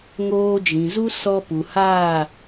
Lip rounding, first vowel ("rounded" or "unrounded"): rounded